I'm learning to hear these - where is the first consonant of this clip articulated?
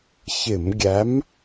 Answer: palate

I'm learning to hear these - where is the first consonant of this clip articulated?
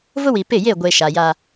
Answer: lips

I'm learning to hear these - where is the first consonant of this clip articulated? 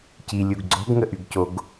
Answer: palate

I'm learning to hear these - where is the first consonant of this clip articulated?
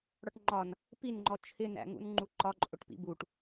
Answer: retroflex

